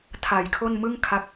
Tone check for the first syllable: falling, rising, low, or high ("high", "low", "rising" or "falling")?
low